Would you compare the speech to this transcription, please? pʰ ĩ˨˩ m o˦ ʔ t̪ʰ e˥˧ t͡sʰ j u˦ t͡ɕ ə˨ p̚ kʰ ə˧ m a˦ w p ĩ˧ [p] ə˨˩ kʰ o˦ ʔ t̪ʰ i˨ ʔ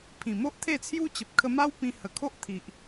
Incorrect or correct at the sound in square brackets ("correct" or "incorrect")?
incorrect